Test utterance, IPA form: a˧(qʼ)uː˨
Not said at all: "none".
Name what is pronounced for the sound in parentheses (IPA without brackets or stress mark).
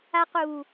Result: q